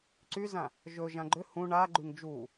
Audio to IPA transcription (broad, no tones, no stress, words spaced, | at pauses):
ǀyzã | ʒɵʒã ɡ͡ǃʏ hũ ɳaɡ͡ǃyŋ d͡ʒu